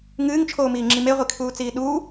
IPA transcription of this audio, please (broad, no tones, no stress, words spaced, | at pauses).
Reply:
ŋɨːŋt͡ʃʰoːmiːŋ͡ǁi meʁʷikʰuːt͡siː ɗuː